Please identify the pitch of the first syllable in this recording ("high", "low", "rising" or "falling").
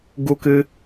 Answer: high